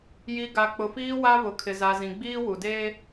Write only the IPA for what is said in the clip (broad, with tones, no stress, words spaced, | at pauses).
ji˨ ɡa˨k͡pʊ˨fiː˦wa˦ βʊ˨kʰɪ˨za˨ zĩ˨ɡ͡biː˦wu˨ deː˦